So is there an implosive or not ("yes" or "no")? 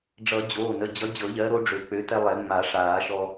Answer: no